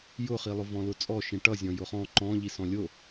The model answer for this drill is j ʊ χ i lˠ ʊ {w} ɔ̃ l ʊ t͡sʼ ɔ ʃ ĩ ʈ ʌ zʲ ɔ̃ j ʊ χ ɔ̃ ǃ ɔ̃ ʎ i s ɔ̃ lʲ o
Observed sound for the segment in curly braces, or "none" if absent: v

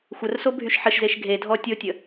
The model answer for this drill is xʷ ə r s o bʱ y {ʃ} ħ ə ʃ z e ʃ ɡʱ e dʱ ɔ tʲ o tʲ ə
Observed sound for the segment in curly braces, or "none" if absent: ʃ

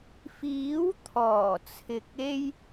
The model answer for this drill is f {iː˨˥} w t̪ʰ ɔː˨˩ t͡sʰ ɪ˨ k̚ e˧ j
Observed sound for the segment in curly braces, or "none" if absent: iː˨˥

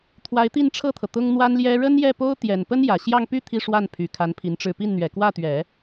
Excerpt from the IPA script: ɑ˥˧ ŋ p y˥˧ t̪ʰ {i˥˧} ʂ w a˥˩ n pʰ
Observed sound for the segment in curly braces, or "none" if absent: i˥˧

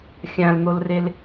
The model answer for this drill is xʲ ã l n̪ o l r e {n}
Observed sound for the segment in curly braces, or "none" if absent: l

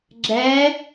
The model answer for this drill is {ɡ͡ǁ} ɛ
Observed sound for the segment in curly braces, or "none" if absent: ɡ͡ǁ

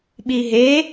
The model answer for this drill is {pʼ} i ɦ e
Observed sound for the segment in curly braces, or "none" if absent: ɓ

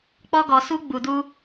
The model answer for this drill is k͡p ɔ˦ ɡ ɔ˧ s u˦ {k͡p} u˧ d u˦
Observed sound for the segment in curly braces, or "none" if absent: ɡ͡b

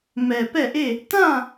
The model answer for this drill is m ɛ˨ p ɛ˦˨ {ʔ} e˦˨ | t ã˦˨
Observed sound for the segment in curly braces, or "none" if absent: ʔ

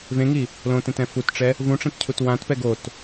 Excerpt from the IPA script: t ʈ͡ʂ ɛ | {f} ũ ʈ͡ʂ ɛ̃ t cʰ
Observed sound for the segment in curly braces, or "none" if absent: v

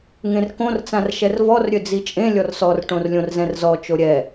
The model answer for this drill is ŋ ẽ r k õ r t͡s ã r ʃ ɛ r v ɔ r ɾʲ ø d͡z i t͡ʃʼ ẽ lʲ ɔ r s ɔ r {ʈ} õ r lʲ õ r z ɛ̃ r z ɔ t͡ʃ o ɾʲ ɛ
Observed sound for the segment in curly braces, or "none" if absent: ʈ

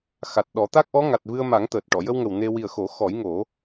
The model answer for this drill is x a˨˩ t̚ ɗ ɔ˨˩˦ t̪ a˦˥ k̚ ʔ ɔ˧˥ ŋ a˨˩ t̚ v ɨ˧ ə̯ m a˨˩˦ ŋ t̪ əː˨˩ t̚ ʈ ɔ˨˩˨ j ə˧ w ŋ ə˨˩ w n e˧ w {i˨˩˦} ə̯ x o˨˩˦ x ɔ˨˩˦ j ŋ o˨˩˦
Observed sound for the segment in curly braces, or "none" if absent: i˨˩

